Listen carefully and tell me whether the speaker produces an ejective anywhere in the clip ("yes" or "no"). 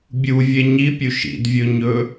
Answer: no